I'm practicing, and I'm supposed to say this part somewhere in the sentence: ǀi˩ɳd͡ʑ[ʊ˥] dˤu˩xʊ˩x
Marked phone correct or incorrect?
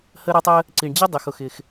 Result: incorrect